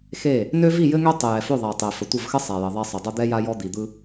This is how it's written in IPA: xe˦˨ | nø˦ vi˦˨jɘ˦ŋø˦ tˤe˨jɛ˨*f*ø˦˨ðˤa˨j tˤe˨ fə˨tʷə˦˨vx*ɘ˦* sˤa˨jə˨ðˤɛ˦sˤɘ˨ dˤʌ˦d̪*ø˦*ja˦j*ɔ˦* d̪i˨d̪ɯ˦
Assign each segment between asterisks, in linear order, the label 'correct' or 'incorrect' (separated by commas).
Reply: correct, correct, incorrect, correct